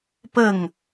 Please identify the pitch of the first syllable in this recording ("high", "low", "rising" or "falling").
falling